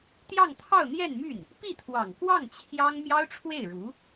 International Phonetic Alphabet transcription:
t̪jɑ˥˧ŋt̪ʰɑ˥˧ʊ̯n̪jɛ˥˧nmy˥˩n | pi˥˩t̪ʰwɑ˨˩ŋkwɑ˥˩ŋ t͡ɕʰjɑ˥ŋ mjɑ˥ʊ̯ʈ͡ʂʰwe˥˩ɪ̯ɻu˧˥

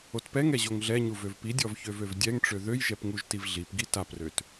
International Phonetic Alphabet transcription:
otpɛŋɛ ʑoŋɮɛɲu vøvpidʲɔv çøvøvdʲɛŋʈ͡ʂø ðøjʒɛp ŋuʒtivɮipɡi taprøt

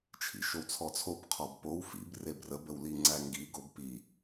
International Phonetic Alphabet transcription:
t͡ʃʰḭʃowt͡sʰɔt͡sʰob qʰɔbpow fḭb rebrəb əwliŋ͡ǀæŋɡi ɡobpi

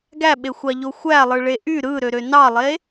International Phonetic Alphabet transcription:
ɡæɓexʷɑʎo xʷælˠɯɭe ʔy ɾɯɾøɾø nɑlˠe

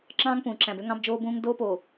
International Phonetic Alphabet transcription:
ǁɑ̃ː˦ŋpũː˨ǁæ̃˨bø˦ ŋɑ̃˦bd͡ʒoː˦bũː˦ŋ doː˦poː˨

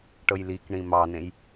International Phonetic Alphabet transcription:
ʈɤjlikɳĩ mɑnẽj

